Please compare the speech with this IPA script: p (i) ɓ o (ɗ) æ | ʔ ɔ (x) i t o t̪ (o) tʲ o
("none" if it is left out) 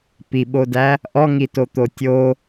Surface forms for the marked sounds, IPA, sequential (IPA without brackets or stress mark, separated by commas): i, d, ŋ, o